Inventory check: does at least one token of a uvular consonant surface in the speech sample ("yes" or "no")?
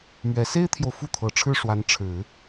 no